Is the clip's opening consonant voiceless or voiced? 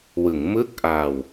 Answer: voiced